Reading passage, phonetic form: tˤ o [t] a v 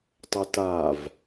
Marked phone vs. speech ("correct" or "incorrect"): correct